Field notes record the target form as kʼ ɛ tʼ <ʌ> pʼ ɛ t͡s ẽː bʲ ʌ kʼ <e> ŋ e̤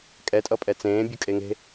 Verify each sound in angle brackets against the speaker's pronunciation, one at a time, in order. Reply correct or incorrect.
correct, correct

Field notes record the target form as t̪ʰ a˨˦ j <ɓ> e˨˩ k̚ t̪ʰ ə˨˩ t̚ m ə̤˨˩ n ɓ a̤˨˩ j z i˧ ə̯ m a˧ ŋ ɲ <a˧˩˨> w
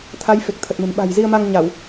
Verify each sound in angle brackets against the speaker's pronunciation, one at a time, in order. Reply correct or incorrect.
incorrect: f, correct

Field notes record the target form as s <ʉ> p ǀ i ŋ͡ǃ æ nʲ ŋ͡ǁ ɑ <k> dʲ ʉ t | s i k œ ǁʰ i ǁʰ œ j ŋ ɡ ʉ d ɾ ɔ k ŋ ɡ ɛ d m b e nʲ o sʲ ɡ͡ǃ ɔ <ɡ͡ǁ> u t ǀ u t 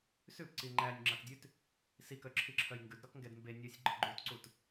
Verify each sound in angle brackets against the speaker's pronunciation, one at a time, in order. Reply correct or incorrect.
correct, correct, incorrect: ɡ͡ǃ

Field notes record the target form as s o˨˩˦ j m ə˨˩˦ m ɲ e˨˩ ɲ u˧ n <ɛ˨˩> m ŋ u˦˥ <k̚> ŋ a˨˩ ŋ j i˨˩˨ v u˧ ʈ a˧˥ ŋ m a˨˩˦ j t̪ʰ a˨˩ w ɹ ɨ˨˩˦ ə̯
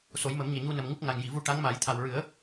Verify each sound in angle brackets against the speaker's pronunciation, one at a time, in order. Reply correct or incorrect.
incorrect: ə˨˩, correct

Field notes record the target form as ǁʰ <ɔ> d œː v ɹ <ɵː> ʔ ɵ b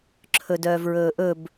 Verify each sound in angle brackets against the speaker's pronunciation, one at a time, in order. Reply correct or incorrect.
incorrect: ɵ, correct

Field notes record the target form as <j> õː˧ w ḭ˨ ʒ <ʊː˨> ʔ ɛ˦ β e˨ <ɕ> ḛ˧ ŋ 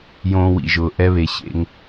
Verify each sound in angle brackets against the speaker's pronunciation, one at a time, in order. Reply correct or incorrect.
correct, correct, correct

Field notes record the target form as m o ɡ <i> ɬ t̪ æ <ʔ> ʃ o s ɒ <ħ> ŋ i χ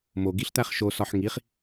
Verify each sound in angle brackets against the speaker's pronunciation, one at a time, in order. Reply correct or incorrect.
correct, incorrect: χ, correct

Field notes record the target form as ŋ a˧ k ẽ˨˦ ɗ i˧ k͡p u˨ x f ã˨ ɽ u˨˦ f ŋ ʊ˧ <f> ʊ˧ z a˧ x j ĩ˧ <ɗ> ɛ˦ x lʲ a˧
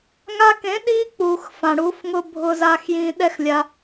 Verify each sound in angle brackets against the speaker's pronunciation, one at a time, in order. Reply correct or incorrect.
incorrect: bʱ, correct

